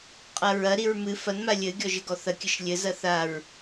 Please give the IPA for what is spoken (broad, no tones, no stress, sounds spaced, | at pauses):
qʼ ɐ ɹ ɐ ɾ i ɹ m ɨ f ɐ n m a lʲ ɘ ɡʲ ɔ ʒ ɘ ɡ ɔ θ ɐ kʲ ɘ ʃ lʲ ɘ z ɐ θ a ɹ